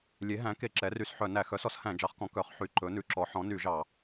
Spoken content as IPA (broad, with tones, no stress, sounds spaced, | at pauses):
lʲ e˩˥ ɦ æ̃˩˥ k e˧˩˧ ǁ ɛ˩˥ r y˧˩˧ s ħ œ˧˩˧ n æ˧˩˧ x œ˩˥ s ɔ˩˥ s h æ̃˧˩˧ d͡ʒ ɑ˩˥ χ k ɔ̃˩˥ k œ˩˥ χ ħ y˧˩˧ ǃ ɵ˩˥ n ʉ˩˥ ǁ ɔ˩˥ ħ ɔ̃˩˥ n y˧˩˧ ʒ ɑ˧˩˧